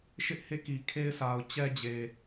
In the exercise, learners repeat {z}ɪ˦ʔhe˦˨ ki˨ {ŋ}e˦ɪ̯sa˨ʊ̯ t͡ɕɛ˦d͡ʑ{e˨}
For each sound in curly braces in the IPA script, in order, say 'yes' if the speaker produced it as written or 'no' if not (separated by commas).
no, no, yes